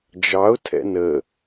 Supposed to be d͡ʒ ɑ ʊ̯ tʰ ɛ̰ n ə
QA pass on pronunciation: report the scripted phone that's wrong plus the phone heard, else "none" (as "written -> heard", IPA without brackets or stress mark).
none